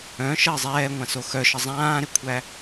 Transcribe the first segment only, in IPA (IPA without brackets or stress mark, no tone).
œ̃